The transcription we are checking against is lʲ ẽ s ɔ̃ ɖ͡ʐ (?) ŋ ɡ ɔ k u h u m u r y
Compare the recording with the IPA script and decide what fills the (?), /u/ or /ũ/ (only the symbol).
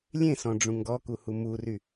ũ